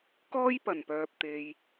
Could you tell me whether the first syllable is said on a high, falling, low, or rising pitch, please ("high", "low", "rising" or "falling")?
high